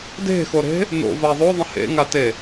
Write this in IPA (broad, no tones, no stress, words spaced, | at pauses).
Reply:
de̤xoɾe̤ | no̰va ðˤoðˤə̃ hḛŋate